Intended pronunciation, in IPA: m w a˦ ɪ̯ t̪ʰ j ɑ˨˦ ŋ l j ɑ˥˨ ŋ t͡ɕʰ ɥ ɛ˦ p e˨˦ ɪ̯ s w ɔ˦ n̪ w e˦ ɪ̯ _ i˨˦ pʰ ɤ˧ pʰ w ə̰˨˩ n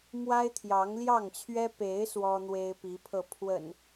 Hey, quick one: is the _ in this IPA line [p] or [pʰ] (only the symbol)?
p